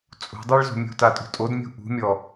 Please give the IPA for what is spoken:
t͡sʼ ṳ dˤ i ɭ z o̤ mʲ ṳ t a tʼ ṳ tʼ o d mʲ ṳ ʔ ṳ mʲ ɔ

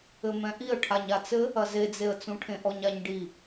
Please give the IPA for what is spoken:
ɘ m ɛ̃ ʔ i ə̯ ʈʰ a ɲ a t͡s ɘ | ɐ z e d͡z e ə̯ t͡s ũ ʈʰ ẽ ʔ ɔ ɲ a ɲ ɖ i

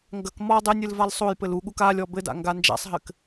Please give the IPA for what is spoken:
ŋ ɡ ɐ k m ɔ dˤ ɘ nʲ ɨ l v a l sˤ o j p ɘ l u ɠ u k a lʲ ɔ b ɘ d a̰ ŋ ɡ a n d͡ʒ a̰ sˤ ɦ ɘ k

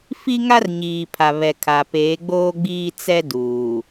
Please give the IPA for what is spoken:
f i˦ ŋ a˦ r ɲ iː˨ pʰ a˨ β ɛ˨ kʰ a˨ p eː˨˦ ɡ͡b oː˦ ɡ͡b iː˦ t͡s ɛ˦ d uː˨

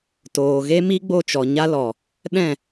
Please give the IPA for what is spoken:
t oː˨ ɣ e˦ m i˦ ɡ͡b o˦˨ t͡ʃ ɔ˨ ɲ a˦ l ɔ˨ | ɗ ɛ̃˦˨

